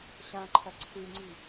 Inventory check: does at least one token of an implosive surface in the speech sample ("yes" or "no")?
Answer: no